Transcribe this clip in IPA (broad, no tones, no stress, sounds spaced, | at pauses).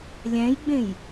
lʲ æ̃ j ɡ͡b ẽ j